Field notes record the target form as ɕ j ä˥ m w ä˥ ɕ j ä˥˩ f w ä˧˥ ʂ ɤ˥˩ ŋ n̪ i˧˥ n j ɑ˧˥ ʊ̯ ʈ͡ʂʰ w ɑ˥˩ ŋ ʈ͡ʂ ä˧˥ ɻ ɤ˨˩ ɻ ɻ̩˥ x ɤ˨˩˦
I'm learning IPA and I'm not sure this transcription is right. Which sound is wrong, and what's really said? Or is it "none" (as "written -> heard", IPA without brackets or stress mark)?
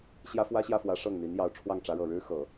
m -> f